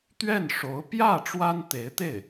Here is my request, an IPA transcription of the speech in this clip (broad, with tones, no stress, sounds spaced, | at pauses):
t̪ ɥ ɛ˥˩ n ʂ o˧˥ ʊ̯ p j ä˥˩ ʈ͡ʂ w a˥ n t̪ e˧˥ ɪ̯ t̪ e˥˩ ɪ̯